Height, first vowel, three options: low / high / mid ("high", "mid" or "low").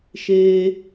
mid